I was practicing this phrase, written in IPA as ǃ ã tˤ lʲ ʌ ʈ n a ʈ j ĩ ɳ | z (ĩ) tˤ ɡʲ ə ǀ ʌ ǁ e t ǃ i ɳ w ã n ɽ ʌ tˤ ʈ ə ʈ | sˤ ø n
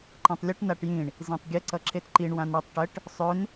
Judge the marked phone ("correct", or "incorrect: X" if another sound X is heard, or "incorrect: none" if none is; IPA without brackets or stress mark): correct